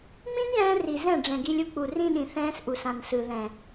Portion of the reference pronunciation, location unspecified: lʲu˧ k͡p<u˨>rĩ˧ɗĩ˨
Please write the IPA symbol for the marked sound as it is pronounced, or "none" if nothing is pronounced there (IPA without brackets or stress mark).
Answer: u˨